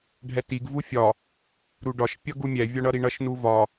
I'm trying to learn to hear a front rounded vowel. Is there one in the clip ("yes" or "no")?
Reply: no